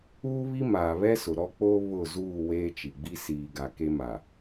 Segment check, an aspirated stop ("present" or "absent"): absent